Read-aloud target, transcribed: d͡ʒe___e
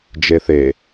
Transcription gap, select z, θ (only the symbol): θ